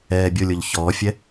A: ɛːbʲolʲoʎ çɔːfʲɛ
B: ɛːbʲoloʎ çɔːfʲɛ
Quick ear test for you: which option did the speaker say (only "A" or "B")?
A